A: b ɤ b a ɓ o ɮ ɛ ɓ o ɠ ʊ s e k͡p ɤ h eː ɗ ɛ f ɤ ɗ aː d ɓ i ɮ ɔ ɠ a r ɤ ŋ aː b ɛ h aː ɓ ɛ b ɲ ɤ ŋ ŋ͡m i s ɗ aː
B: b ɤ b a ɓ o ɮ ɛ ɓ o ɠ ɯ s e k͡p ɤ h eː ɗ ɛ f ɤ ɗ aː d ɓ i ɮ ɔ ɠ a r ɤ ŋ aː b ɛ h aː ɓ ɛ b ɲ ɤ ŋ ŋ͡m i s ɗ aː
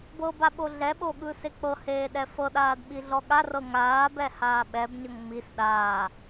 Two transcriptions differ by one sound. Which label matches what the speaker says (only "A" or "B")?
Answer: B